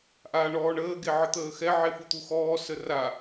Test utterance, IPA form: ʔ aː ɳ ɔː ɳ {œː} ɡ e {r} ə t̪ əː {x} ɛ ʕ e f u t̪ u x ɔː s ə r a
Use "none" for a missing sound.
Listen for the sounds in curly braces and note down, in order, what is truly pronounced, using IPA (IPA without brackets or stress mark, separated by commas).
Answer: əː, ʕ, x